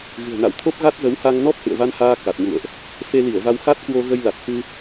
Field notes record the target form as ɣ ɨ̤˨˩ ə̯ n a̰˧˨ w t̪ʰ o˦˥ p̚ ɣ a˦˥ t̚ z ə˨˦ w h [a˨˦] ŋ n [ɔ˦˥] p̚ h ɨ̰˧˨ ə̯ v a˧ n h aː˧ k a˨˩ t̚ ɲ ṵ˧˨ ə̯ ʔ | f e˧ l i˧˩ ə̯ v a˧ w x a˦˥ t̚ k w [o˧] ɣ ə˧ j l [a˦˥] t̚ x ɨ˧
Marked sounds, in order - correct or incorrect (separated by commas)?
incorrect, correct, correct, incorrect